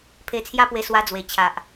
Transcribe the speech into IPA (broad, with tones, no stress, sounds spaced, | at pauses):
pʰ e˧ t͡sʰ j a˦ p w e˧ s w a˧ d͡z w e˨˩ t͡ɕʰ a˨ ʔ